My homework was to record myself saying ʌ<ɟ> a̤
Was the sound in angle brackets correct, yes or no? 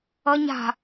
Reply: no